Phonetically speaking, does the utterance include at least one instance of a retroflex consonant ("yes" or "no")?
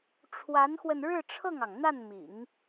yes